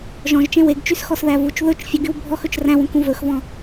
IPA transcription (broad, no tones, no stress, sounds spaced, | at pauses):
ʒ ɔ̃ ʒ t͡ʃ ẽ w e ɡ t͡ʃ y s x ɔ s ð æ v u t͡ʃ ð ɵ t͡ʃ fʲ u ɡ y w bʱ ɔ x ɵ t͡ʃ r æ̃ w ũ k ũ v ɵ x v ɔ̃